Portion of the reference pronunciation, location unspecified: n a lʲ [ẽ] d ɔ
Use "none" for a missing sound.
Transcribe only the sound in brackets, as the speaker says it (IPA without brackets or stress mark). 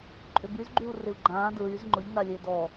e